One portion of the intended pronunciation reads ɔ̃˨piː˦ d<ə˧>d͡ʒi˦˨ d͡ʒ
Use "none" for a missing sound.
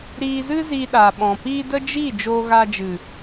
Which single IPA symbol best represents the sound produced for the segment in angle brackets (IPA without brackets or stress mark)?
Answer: ə˦